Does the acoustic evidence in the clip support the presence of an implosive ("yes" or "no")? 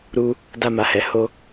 no